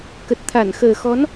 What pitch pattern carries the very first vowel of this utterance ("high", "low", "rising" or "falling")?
low